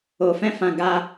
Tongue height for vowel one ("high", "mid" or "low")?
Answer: mid